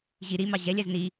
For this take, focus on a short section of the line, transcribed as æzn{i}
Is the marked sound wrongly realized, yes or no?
no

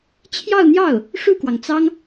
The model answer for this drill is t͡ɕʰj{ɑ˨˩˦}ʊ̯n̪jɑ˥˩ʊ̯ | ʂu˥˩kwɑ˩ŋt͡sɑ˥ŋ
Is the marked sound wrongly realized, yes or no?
yes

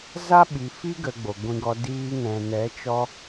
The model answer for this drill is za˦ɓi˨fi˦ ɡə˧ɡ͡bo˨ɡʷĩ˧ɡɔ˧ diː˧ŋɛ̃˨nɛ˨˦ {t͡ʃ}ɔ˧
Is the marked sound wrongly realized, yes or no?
no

